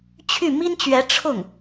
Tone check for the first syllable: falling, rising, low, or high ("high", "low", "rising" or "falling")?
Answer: falling